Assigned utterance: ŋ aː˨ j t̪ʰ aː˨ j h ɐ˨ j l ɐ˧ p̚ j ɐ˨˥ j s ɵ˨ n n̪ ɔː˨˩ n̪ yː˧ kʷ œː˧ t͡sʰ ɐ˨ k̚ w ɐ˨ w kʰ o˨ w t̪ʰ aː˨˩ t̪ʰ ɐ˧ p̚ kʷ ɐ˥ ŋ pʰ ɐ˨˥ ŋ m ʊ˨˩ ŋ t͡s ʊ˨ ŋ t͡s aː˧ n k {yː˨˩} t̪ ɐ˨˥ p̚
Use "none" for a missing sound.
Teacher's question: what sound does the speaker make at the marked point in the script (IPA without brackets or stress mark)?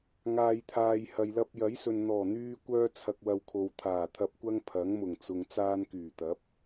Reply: yː˨˩